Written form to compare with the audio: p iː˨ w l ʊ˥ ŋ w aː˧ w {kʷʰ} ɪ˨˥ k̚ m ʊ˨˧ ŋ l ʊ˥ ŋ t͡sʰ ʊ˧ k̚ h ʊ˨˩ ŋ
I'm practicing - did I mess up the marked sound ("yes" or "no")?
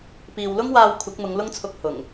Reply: no